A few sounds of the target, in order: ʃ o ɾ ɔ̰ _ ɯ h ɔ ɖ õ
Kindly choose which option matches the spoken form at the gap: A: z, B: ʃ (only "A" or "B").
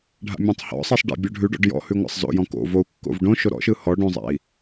B